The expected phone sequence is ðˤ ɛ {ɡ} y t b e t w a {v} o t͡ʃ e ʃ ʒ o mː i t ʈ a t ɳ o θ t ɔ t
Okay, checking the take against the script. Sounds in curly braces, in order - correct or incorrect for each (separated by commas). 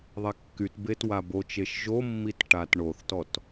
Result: incorrect, incorrect